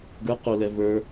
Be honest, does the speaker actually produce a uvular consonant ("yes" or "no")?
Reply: yes